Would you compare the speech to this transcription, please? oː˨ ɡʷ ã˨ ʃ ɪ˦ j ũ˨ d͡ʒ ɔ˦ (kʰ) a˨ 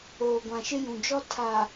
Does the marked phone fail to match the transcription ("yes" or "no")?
yes